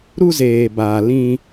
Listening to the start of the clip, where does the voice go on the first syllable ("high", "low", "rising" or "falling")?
high